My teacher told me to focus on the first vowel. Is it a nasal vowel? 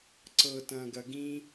no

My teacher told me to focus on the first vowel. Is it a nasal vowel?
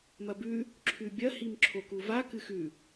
no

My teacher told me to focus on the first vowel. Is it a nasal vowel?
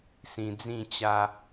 yes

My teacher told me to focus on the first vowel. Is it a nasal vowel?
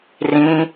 yes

